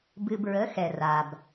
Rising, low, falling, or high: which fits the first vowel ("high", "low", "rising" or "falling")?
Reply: low